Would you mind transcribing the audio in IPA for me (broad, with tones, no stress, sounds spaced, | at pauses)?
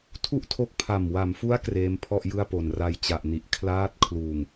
tʰ u˥˩ ʔ tʰ o˦˥ k̚ pʰ a˨˩ m w a˩˦ m f u˦˥ a̯ k r eː˦˥ m pʰ ɔ˥˩ ʔ j ɯ˥˩ a̯ p o˨˩ n r a˧ j t͡ɕ a˨˩ ʔ n i˨˩ ʔ kʰ l aː˦˥ t̚ kʰ l uː˨˩ ŋ